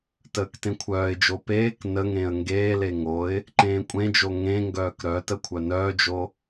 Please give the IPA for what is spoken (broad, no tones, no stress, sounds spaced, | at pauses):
t əː k t ẽ kʷʰ œː ɪ̯ d͡ʒ o p eː k n ə ŋ ẽː ə̯ ŋ ɡ eː l e ŋ o ɪ̯ | ǃ ẽː kʷʼ ẽ d͡ʒ o ŋ ẽ ŋ ɡ œː k ɾ œ t ə kʷʰ œ n œː d͡ʒ o